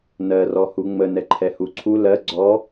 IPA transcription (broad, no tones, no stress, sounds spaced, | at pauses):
n ɜ r ɔ h u ŋ͡m ə n ɛ ǃʰ ɛ h u ǀʰ u l ɜ ɡ͡ǀ ɔ